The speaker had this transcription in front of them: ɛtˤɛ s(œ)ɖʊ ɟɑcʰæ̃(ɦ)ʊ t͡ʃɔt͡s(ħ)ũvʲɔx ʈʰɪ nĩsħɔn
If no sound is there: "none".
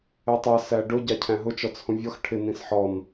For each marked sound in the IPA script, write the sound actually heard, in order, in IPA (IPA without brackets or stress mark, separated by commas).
æ, ɦ, h